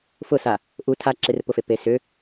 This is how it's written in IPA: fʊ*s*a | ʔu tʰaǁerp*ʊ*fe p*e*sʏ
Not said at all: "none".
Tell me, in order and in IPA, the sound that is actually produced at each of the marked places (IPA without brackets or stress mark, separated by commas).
s, ʊ, e